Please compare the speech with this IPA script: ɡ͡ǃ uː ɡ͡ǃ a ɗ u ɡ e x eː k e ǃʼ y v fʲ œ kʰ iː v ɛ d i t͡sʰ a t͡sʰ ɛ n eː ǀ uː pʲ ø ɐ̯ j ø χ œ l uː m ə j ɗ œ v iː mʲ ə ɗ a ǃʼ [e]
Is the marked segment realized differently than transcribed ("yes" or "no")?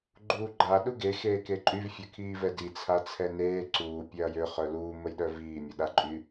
yes